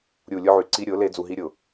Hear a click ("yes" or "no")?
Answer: yes